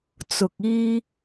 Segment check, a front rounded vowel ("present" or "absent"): absent